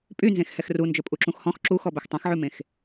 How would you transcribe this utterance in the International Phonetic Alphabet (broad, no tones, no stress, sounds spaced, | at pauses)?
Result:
pʼ y n z ẽ x h ɛ x r u n d͡ʒ ɵ pʼ u ǁ ũ x h ɔ̃ x ǁ u x ɔ b ɵ x tˤ ɛ̃ x ʕ ʉ m ẽ x